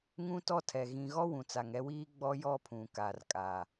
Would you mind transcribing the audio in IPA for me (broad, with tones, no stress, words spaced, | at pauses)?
ŋũ˦tɔ˦tʰɛ˨ ɣĩ˨ɣɔ˦ wũ˨t͡sa˨ŋɛ˦wiː˦ ɡ͡bɔ˦jɔ˦pʰũ˨ka˨r kʼa˨